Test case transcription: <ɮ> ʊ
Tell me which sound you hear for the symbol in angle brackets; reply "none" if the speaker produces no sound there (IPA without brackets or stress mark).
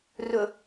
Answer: r